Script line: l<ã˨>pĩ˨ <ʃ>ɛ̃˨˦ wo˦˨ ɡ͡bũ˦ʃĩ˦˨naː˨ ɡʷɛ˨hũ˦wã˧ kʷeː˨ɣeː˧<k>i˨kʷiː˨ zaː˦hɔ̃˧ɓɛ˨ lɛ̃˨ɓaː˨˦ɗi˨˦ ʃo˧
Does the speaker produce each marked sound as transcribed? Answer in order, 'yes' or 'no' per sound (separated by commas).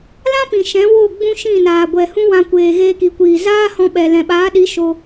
no, yes, yes